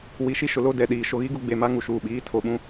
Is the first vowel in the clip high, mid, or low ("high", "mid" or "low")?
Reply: high